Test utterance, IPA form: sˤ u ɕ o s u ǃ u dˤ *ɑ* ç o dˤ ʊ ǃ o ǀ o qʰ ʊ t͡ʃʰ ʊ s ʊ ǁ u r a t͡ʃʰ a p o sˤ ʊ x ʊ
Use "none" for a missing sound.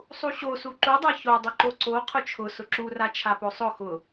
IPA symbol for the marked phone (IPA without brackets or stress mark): a